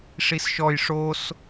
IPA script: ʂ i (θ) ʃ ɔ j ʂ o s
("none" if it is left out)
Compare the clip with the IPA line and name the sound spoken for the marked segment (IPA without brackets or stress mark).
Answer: s